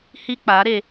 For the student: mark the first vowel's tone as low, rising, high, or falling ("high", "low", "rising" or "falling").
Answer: high